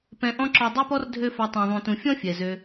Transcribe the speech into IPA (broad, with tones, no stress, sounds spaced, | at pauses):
p ɛ̃˨ ʔ ɔ̃˧ ǁ ɔ˨ dˤ ø˦ p ɔ˦ r dʱ ø˦ f a˧ tˤ ã˨ ðˤ ũ˨ t ũ˨ fʲ ɔ̃˦ fʲ ɛ˨ z ø˧